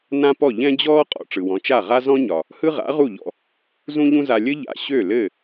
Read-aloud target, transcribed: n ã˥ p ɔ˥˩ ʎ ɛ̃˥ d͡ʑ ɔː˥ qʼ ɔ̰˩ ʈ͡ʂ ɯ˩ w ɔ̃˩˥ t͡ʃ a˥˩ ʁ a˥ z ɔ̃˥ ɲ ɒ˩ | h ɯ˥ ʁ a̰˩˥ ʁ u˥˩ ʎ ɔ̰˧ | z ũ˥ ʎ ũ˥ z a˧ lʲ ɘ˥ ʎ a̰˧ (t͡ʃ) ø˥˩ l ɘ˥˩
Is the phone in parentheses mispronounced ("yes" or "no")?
yes